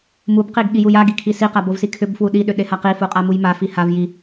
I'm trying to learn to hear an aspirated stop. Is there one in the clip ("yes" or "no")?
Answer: yes